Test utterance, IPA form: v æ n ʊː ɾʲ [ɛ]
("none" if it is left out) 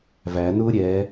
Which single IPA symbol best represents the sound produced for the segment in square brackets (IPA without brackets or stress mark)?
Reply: ɛ